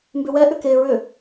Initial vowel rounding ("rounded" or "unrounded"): rounded